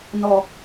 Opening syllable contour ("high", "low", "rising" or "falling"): low